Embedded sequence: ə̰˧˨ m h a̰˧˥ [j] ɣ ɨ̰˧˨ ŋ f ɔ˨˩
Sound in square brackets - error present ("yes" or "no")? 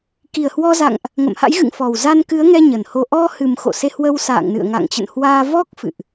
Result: no